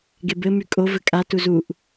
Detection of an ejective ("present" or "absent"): present